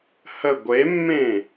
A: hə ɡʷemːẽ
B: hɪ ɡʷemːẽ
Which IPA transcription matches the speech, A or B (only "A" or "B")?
A